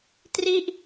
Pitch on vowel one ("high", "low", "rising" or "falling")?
falling